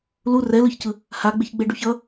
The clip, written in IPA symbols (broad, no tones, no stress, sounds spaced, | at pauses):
l u r ɛ l ɯ ç c ɯ | h a ɡ͡b e ç ɡ͡b e ɖ u ç ʌ